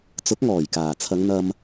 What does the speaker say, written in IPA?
t͡s ʊ˨˥ k̚ ŋ ɔː˨˩ j k aː˨˩ t͡sʰ ɐ˨˧ ŋ n̪ ɐ˥ m

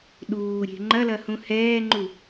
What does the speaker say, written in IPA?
ɗ uː ɾʲ e̤ ŋ͡ǃ ɐ l ɐ h ũ h ɛː ŋ͡ǃ u

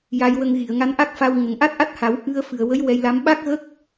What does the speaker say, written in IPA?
j a˧ j w ə˧ ŋ ɣ i˨˩˨ ə̯ ŋ a˧ n ʔ a˦˥ k̚ f a˧ w ŋ ə˨˩ ŋ ʔ a˦˥ t̚ ʔ a˦˥ t̚ h a˨˩˦ w ʔ ɨ˧ ə̯ f ɨ˨˩ ə̯ w ə˧˥ j w ɛ˧ j l a˧˥ m ɓ a˦˥ k̚ ɣ ə˦˥ k̚

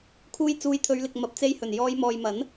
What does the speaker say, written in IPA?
kʰ uː˧ j t͡s uː˨˧ j t̪ʰ ɵ˨˧ ɥ l ɪ˨ k̚ m ɐ˨ p̚ t͡s e˧ j h ɵ˨˩ n j ɔː˨˧ j m ɔː˨ j m ɐ˨˥ n

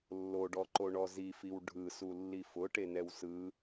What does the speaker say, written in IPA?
lː o ɖ ɔ ǃ o ɳ ɔ z i f i w ɖʱ ɯ s u lː i f ʊ ʈ e n ɛ w s ɯ

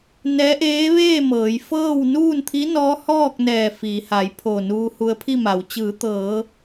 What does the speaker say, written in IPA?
n ɛː˧˥ ʔ eː˧˥ ʋ eː˥˨ m ɤː˩˧ j f ɤː˥˨ w n uː˥˨ n t̪ʰ i˧˥ n ɔː˧˥ h ɔː˥˨ k̚ n ɛː˧˩ f iː˩˧ h a˩˧ j pʰ o˧˩ n uː˧ h u˧ ə̯ pʰ i˥˨ m a˩˧ w t͡ɕ ɯː˩˧ t̪ ɤː˩˧

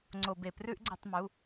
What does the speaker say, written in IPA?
ŋ͡ǀ o˧˩˧ b e˩ p r ʉ˦ ʔ ɡ͡ǀ e˧˩˧ tˤ m u˩˧˩

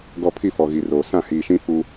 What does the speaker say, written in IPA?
ɡ ɔ˨ pʰ i˦˨ f ɔ˨ ɣ i˨ r oː˨ s ã˦˨ h iː˨ ʃ ĩ˦ f u˦

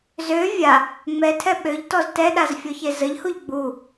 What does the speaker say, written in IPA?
z ø vʲ a | ŋ͡m ɛ tʰ ɛ ɓ ø ʎ t ɔ z t ɛ ɗ a z fʲ ɔ ç e z ə ʎ h u ʎ ɡ͡b u

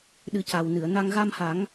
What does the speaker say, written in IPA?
ɗ ɨ˨˩˦ c a˨˩ w n ɨ˨˩˨ ə̯ n a˧ ŋ ɣ a˧ m h a˨˩˦ ŋ

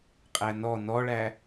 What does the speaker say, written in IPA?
qʼ æ n ɔ n ɔ ɭ æ

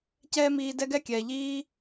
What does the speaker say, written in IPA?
c ɛː˦ m iː˧ d ɛ˦ ɡ ɛ˦ kʲ ɛː˨ ʎ iː˦

